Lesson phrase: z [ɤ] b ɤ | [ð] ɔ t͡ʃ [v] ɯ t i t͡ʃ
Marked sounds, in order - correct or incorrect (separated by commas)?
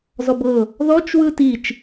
incorrect, correct, incorrect